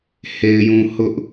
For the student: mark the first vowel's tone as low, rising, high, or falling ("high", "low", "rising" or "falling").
low